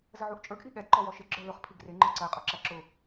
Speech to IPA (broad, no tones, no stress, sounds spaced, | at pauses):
z ə ʕ u ʔ t͡ʃʼ ə˞ ɡ ʔ i ɠ ɛ d ǃ ɔ w ɔ ʃ ɪ ɡ͡ǁ ə˞ l ʊ χ pʰ i ɡ r ɪ ŋ͡ǃ ə˞ ǀ ə e̯ qʼ ʊ ǁ æ ǁ ʊ